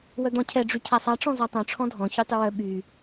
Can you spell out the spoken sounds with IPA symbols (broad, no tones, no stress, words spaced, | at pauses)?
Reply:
wœd̪ɔ̃cʰɛ ɖ͡ʐycʰasˤa ʈ͡ʂɔ̃zatˤœ̃ ʈ͡ʂʰɔ̃dʱɔ̃ çytˤʏwœ ɓy